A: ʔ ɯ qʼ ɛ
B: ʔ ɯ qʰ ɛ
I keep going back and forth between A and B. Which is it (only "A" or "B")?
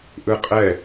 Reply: A